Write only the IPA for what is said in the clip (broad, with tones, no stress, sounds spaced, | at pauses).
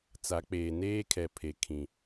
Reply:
t͡s a˨˦ k͡p eː˨ n eː˦ kʰ ɛ˨ pʰ e˨ kʰ ĩ˨